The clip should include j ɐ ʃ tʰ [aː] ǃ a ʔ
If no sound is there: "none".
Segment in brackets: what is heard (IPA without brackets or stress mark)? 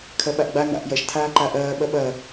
aː